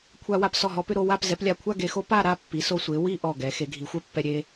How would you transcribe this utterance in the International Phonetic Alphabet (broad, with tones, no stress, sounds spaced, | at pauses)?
kʷʰ a˧ w a˧ p s ɔ˧˩ ɦ ɔ˧ p ʏ˥˧ ɾ o˥˧ w a˥˧ p z ɛ˩˧ p lʲ a˧˩ kʷʰ a˥˧ ɡ e˧ x o˥ p a˥˧ ɾ a˥˧ pː i˩˧ s o˧ sʷ e˩˧ w i˥˧ ʔ ɔ˧˩ ɡ ɛ˩˧ x e˩˧ ɡʱ i˩˧ xʷ ɛ˥ pː ɛ˧ ɾʲ e˧